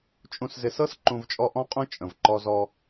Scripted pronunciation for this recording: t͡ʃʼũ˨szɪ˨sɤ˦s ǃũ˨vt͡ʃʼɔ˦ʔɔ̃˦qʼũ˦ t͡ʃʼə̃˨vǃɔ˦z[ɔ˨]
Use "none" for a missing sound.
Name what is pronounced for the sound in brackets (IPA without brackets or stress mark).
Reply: ɔ˦